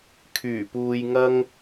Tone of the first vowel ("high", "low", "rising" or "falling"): low